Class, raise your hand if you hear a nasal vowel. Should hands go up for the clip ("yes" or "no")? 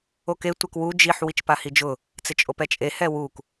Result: no